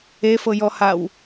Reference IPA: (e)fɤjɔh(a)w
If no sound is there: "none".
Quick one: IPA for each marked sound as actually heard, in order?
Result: e, a

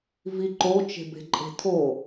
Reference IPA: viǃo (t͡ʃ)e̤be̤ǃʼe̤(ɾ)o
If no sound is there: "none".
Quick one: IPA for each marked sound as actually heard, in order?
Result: t͡ʃ, tʰ

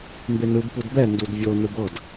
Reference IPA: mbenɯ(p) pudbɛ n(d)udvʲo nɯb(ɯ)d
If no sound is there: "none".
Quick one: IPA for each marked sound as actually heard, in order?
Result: b, d, ɤ

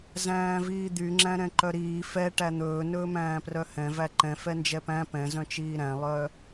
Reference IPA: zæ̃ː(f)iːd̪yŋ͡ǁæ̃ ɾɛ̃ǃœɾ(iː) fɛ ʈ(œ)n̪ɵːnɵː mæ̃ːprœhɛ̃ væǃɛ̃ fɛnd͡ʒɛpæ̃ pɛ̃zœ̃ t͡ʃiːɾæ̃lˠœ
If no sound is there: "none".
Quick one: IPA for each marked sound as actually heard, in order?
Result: v, iː, æ

